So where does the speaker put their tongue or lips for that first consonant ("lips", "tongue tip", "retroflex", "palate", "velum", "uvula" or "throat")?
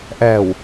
throat